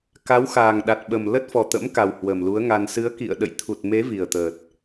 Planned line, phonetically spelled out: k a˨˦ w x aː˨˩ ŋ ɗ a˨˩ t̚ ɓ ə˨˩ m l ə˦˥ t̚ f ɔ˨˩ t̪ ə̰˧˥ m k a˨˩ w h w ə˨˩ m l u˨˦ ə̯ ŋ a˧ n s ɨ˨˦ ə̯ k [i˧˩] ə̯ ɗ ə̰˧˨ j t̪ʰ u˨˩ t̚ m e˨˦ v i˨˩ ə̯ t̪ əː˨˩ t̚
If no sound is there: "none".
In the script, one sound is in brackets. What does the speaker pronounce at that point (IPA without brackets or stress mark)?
ḭ˧˨